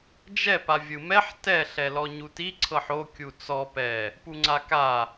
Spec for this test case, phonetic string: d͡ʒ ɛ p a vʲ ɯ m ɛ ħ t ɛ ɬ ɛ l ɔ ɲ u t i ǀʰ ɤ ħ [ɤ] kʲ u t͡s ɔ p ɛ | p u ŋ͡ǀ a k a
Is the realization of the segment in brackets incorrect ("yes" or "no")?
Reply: yes